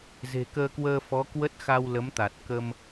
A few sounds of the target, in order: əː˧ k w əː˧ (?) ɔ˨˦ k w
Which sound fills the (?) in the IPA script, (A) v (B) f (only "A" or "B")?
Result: B